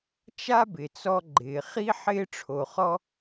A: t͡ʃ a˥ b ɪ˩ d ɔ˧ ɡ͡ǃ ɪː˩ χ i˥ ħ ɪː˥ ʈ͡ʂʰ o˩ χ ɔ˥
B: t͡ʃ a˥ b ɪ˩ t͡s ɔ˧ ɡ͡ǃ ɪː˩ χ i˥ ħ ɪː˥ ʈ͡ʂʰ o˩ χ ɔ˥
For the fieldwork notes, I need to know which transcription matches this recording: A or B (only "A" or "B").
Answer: B